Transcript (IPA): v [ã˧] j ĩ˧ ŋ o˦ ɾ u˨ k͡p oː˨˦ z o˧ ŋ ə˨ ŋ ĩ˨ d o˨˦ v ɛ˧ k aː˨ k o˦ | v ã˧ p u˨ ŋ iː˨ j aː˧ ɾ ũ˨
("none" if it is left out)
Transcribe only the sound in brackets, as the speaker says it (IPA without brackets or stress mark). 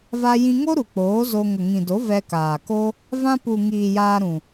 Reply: a˧